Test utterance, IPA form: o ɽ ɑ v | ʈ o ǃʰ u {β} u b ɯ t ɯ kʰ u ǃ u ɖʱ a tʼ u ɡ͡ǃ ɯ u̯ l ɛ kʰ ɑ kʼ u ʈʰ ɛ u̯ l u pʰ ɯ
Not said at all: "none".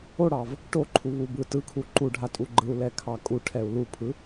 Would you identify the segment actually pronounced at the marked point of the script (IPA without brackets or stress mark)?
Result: β